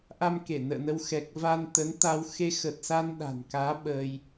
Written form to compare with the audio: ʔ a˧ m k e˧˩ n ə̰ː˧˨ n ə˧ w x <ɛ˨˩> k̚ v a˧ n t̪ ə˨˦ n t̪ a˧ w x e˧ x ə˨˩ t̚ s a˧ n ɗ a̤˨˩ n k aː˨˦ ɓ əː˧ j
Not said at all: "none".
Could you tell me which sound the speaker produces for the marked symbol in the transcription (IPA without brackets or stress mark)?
ɛ˨˩